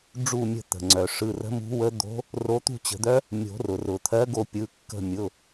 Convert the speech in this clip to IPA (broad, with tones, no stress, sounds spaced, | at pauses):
ɖ͡ʐ u˦˨ mʲ ə̤˦˨ t̪ ə̤˩ ŋ͡ǀ œ˩ ʂ ɯ˩˧˩ r ə̤˧˥ m ṳ˧˥ w ə˧˥ d̪ o̤˧˥ | r o˧˥ t̪ ṳ˦˨ t͡ɕ ə̤˨˩˦ d̪ œ˧˥ | mʲ o̤˨˩˦ r ʊ˩ r ʊ˩ t̪ʰ ɜ˧˥ ɡ o˦˨ pʲ ɯ˩˧˩ kː ə̤˦˨ mʲ ʊ˩˧˩